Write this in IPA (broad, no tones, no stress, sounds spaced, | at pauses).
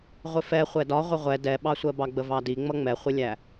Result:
ʁʷ ɪ f ɛ χʷ ɛ d ɒ ʁʷ ɪ ʁʷ ɛ d ɛ ɓ ɑ sʷ ɜ b ɑ ɡ͡b ə v ɑ d i ŋ͡m ʌ ŋ͡m ɛ χʷ ɪ lʲ æ